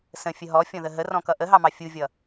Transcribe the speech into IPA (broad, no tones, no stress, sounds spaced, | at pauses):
s ə̃ fʲ ə ɦ ɔ fʲ ɔ̃ ð ə ɦ ə r ɔ̃ k ʌ ʔ ə ɦ ɑ m ɑ fʲ u vʲ ʌ